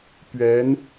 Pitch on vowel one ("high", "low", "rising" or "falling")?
rising